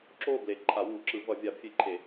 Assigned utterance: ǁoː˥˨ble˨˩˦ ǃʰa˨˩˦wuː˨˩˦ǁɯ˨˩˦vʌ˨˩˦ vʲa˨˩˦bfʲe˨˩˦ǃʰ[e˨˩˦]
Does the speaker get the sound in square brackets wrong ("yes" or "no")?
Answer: no